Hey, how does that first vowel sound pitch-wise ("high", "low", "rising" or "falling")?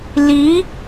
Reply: rising